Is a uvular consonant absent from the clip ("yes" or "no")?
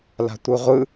no